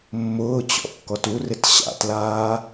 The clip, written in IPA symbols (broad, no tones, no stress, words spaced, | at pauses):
mːʊːt͡ɕɔ̰ kːɔturɪt ɕa̰tlaː